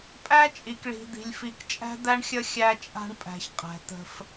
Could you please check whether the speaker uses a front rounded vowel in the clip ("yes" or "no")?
no